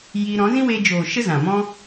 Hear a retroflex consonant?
no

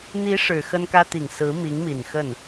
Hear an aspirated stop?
no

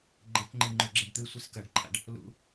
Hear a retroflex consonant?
yes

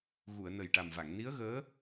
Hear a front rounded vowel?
no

